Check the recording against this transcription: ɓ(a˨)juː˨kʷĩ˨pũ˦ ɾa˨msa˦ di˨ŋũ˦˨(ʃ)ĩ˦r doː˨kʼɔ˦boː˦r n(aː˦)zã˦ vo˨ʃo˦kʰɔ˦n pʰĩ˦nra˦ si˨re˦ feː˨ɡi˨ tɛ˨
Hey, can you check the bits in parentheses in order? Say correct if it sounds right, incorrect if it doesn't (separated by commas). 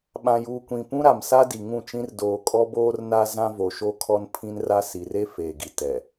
incorrect, incorrect, incorrect